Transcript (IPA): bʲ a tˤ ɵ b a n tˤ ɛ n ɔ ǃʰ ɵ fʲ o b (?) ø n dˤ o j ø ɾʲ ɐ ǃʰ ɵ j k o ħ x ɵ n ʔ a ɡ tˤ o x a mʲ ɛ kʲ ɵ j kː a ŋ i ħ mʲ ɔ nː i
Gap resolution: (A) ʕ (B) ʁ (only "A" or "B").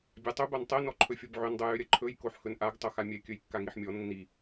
A